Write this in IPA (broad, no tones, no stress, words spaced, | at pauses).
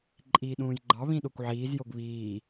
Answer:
ǃʼiːɗũːjɡ͡ǃɑ βĩɗokʷʕiːz joɡβiː